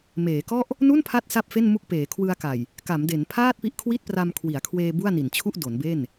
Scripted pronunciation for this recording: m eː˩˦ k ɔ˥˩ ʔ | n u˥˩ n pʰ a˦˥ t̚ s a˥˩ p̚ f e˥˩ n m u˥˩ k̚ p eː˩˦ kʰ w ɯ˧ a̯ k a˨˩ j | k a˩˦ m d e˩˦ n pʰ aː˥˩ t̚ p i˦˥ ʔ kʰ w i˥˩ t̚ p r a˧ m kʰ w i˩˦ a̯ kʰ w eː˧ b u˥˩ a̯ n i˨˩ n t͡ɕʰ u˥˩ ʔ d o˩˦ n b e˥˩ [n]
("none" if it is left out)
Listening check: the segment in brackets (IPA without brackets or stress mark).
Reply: n